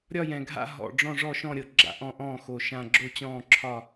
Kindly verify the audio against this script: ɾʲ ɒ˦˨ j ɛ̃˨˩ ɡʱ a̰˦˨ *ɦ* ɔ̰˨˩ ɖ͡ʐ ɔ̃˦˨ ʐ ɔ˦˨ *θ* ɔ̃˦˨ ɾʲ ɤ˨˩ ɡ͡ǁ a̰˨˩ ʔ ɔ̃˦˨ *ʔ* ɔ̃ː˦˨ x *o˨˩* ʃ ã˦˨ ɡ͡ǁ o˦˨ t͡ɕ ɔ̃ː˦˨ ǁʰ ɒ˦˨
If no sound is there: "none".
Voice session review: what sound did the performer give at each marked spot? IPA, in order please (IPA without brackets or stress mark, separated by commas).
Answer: ɦ, ʃ, ʔ, o˨˩